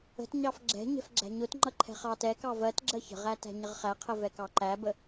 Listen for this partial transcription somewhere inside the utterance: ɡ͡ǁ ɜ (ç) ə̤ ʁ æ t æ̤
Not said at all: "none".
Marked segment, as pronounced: ç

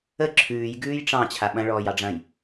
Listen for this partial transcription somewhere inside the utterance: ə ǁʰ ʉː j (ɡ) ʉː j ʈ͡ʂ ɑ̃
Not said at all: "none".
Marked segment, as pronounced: ɡ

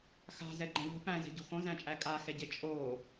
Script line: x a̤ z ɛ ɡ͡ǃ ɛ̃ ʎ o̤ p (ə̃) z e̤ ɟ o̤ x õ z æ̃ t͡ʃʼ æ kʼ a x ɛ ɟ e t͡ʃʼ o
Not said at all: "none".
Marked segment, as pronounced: æ̃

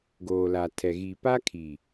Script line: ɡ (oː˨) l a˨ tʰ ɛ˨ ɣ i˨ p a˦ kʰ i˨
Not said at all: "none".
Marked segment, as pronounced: oː˨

